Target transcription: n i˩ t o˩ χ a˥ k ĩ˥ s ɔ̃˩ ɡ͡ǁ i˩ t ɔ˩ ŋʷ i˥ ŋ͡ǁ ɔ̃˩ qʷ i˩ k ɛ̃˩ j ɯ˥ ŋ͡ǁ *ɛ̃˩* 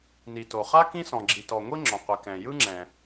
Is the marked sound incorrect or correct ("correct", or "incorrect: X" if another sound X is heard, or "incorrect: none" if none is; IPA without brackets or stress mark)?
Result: correct